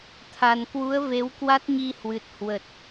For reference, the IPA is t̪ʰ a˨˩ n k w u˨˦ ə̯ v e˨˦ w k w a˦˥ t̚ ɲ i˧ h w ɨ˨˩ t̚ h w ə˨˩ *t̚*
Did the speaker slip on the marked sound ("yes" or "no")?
no